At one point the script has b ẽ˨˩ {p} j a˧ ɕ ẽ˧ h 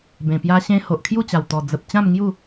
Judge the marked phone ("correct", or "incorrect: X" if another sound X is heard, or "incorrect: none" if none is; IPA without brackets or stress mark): correct